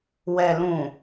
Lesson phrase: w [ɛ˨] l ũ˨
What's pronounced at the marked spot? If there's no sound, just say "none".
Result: ɛ˨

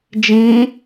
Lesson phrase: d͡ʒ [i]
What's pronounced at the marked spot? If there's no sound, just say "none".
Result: ĩ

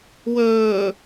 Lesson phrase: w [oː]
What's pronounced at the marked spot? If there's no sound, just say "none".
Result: ɵː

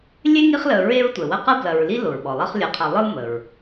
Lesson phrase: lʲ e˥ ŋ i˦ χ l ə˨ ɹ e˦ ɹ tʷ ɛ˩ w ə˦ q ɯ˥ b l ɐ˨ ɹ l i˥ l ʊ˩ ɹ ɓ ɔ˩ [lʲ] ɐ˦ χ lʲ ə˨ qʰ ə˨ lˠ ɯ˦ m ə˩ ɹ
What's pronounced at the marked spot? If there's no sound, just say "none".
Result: lˠ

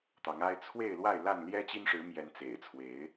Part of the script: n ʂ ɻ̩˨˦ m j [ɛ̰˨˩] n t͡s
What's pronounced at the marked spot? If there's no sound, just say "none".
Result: ɛ˨˦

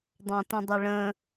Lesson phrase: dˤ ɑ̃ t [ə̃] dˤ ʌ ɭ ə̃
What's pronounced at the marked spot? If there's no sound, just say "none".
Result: ə̃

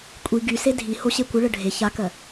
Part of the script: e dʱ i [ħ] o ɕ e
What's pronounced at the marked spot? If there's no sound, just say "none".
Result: h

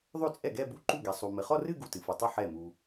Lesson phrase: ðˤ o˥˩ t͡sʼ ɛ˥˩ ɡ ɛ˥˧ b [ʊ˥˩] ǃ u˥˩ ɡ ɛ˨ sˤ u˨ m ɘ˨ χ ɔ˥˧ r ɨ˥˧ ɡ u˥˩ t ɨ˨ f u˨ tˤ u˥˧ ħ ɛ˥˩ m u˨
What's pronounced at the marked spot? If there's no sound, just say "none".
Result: u˥˩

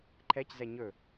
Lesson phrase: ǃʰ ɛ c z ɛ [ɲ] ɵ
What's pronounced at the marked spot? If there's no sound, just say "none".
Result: ɲ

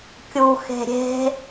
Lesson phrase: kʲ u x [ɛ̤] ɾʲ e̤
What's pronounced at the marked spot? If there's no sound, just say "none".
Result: e̤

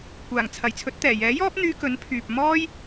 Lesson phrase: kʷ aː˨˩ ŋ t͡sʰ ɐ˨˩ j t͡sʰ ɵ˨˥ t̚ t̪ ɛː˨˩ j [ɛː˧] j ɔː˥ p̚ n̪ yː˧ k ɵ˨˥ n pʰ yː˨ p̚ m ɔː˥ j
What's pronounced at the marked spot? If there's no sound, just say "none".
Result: ɛː˨˥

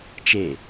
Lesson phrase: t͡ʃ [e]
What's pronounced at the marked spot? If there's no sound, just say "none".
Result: e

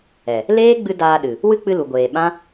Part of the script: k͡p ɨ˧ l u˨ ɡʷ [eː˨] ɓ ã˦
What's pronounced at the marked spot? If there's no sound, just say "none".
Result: eː˨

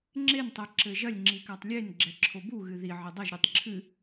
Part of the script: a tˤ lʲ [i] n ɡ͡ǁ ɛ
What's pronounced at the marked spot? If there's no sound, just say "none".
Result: e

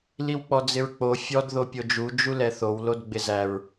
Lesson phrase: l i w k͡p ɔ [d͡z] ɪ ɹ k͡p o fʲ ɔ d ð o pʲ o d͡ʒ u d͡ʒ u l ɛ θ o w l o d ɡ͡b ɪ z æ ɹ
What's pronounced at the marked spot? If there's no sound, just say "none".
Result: d͡z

